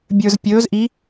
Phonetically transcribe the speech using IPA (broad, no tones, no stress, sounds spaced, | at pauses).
bʲ ə˞ z pʲ ɵː z ʔ i